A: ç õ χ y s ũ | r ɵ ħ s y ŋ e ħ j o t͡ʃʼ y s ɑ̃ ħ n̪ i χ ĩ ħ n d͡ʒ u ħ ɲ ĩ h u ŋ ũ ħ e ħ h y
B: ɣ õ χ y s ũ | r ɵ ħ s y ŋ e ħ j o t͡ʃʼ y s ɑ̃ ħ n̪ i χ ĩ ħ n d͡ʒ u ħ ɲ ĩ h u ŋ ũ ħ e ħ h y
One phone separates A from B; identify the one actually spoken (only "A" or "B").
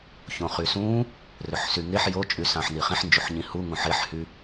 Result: A